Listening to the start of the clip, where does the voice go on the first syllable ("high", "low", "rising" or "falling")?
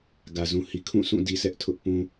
low